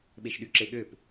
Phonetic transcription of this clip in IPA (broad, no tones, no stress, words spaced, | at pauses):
ɓeʃɗyǁeɠøp